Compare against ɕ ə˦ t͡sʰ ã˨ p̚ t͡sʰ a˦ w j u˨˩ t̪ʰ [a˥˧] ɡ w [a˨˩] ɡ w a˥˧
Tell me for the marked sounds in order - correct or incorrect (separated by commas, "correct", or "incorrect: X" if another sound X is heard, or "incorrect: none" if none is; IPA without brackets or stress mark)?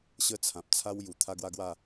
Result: incorrect: a˦, incorrect: a˦